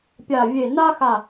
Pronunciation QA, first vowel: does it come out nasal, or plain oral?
oral